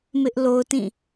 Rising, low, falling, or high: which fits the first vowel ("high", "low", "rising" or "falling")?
high